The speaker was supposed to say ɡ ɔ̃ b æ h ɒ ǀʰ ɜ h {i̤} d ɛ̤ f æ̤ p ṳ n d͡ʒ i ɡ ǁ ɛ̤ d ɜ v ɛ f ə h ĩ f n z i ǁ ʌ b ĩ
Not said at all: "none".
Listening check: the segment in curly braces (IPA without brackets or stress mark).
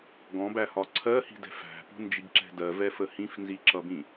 i̤